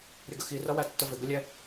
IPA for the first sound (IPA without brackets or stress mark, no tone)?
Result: ɾʲ